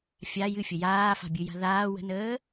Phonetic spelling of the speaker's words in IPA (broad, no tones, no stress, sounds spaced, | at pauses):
fʲ a j ɨ fʲ ə j aː f a̤ bʲ ɨ j a̤ ð aː w ə̤ n əː